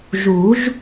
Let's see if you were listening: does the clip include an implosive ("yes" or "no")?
no